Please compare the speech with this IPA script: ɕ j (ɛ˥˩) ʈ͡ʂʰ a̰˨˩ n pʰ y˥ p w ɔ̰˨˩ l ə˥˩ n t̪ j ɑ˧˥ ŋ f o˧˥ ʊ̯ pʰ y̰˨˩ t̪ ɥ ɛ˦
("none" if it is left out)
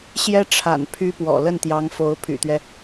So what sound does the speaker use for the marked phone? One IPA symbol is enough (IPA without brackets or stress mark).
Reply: ɛ˥